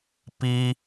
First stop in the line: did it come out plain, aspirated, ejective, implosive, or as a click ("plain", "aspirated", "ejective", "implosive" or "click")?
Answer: plain